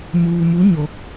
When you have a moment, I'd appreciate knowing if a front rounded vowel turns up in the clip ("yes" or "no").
no